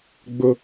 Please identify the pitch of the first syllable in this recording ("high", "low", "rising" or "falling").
high